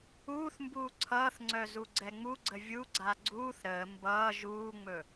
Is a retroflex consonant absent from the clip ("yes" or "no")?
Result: yes